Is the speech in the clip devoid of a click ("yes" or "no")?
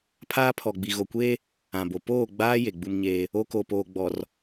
yes